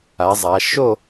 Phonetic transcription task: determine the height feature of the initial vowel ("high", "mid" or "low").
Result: low